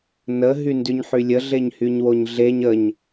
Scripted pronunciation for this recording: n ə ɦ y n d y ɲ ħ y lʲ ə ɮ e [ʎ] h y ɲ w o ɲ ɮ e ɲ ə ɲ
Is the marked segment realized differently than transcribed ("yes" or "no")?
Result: yes